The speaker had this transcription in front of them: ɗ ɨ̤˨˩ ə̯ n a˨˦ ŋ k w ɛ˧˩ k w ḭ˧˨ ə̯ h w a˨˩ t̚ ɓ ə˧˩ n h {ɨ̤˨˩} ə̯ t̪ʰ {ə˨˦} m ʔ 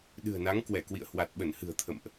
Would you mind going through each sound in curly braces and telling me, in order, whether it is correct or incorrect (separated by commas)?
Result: correct, incorrect